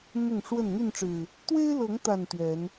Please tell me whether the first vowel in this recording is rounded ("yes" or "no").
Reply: yes